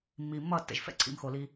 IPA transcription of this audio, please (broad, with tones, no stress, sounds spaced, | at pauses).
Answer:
mː iː˨ mː ʌː˦˨ tː ɛ̰˨ ʒ f ɛ̰˦ ǀʰ ḭ˧ m x o˨ l i˧